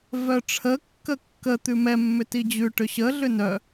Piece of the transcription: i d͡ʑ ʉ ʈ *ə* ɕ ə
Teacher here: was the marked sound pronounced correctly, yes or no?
no